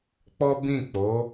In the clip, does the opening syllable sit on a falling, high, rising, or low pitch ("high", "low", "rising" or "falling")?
high